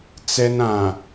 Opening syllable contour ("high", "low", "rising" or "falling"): high